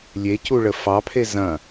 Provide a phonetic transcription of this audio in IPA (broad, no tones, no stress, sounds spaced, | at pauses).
lʲ e c u ɭ ə f ɑ pʰ e z ɐ̃